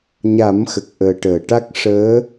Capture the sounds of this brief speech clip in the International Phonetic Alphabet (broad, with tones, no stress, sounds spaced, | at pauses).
ɲ a˨˩˦ m x ə˨˩ k̚ ʔ əː˨˩ ʈ əː˨˩˨ ʈ a˦˥ k̚ ʂ əː˧˥